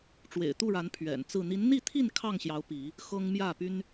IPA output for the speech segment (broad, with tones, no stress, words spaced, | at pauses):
ʈ͡ʂwḛ˨˩ɪ̯t̪u˥˨ɻa˨˦n pʰɥɛ̰˨˩nt͡sɹ̩˥˨ n̪i˨˦nn̪i˥˨t̪ʰi˥˨n kʰɑ˥˨ŋɕjɑ˨˦ʊ̯ pi˨˦ | xɤ˦ŋ mjä˥˨py˦n